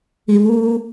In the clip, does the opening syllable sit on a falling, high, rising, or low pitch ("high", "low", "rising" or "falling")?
low